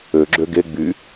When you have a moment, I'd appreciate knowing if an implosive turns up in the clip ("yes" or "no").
no